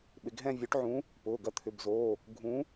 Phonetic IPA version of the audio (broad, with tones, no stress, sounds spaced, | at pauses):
ɓ ɪ˩˧ ɡ ɦ ɛ̃˥˧ vʲ ø˨˥ ʈ ʕ ũ˨˥ | p ʊː˩˧˩ ɡ ɐ˧ t̪ʰ ʏ˩˧˩ b z oː˩˧˩ | ɡʱ ũ˨˥